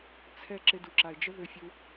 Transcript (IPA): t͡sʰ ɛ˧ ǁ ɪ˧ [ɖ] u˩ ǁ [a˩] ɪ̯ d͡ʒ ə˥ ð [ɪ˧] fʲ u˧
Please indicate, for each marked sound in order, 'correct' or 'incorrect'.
incorrect: d, correct, incorrect: ʏ˧

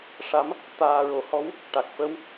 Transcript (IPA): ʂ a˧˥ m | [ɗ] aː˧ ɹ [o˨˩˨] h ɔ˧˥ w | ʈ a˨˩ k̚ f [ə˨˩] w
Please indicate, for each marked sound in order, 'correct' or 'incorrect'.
incorrect: t̪, incorrect: o˨˩, incorrect: ə˧˥

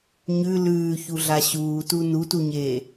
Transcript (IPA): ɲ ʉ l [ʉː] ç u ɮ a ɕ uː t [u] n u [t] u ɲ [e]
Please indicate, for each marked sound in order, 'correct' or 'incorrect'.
correct, correct, correct, incorrect: eː

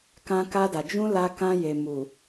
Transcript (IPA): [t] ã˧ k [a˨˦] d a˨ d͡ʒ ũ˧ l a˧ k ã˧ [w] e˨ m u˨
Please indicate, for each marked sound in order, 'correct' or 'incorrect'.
incorrect: k, incorrect: a˧, incorrect: j

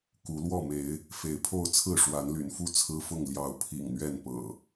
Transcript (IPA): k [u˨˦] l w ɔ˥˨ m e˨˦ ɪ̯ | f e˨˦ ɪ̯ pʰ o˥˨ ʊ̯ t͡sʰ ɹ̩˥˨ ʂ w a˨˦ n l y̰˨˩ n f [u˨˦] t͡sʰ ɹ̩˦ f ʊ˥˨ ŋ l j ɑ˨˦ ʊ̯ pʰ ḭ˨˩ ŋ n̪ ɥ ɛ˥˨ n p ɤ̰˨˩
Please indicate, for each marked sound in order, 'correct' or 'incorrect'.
correct, incorrect: u˥˨

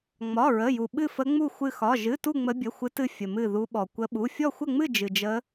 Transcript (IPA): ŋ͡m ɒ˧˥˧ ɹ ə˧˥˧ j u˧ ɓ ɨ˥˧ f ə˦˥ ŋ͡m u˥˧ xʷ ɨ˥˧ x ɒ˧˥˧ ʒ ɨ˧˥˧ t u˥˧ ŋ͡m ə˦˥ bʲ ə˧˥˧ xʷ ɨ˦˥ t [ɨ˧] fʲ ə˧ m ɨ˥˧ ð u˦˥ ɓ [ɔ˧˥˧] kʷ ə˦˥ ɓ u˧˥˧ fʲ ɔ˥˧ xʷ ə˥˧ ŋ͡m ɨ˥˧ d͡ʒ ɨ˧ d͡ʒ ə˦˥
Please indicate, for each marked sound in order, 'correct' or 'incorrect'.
incorrect: ɨ˥˧, incorrect: ɔ˧

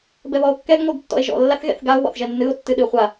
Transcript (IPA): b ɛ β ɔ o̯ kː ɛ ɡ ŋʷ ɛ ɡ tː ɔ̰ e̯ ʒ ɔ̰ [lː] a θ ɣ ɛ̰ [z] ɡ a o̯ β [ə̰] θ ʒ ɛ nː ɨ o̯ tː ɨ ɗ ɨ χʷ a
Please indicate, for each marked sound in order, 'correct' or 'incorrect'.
correct, incorrect: θ, incorrect: ɔ̰

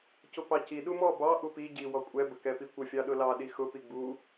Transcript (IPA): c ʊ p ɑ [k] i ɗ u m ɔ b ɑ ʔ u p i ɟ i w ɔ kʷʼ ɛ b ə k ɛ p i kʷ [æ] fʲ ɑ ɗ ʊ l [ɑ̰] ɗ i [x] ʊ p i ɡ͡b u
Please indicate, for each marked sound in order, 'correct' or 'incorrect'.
incorrect: c, incorrect: ə, incorrect: ɑ, correct

